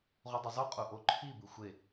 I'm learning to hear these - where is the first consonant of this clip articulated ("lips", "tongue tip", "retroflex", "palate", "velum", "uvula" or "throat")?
uvula